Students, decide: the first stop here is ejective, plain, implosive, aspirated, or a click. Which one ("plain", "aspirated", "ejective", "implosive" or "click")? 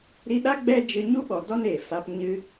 implosive